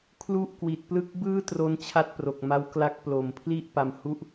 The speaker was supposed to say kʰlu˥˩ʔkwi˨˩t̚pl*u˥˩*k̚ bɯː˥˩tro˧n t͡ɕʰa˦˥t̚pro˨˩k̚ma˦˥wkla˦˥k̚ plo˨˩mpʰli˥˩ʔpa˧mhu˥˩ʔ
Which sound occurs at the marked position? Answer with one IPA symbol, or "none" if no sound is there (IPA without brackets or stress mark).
ɯ˥˩